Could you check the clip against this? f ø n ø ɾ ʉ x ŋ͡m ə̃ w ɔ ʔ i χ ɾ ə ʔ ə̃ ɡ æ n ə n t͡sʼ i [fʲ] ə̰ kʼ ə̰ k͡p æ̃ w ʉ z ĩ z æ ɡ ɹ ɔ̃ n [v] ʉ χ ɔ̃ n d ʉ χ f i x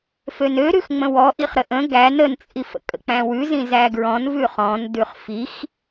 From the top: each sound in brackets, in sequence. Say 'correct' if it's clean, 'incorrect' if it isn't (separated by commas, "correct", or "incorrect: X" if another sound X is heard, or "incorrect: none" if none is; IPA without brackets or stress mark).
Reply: incorrect: f, correct